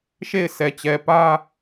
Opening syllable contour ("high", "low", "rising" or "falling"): falling